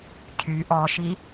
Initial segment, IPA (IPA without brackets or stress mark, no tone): cʰ